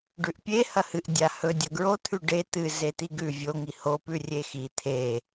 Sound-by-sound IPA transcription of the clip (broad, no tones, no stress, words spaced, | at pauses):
ɖʉʔpʲe hɐhɨʔ dʲahɵ dʲɐɡɹo t̪ʰʉɖe t̪ɨ zet̪iɡʉ vʲo ŋiho pʉrʲexi t̪ʰe